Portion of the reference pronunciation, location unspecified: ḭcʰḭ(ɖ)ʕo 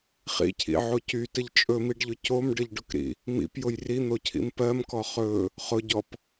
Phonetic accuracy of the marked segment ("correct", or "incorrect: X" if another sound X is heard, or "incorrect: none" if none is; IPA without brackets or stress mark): incorrect: none